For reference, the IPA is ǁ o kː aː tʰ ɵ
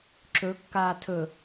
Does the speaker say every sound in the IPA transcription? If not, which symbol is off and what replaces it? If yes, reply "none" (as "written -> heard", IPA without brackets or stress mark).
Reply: o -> ɵ